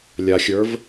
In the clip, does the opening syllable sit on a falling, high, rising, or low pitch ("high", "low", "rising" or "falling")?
low